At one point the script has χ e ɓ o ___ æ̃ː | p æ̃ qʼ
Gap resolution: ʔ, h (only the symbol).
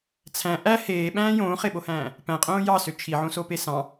h